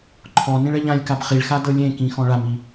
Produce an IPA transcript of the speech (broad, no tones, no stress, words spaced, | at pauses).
ǃʰɔnĩɭ ɛʎãlʲkab χiɭxa dɤlʲẽkĩ xɔ̃ɭami